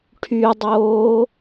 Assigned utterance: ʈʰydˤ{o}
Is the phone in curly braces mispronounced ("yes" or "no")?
yes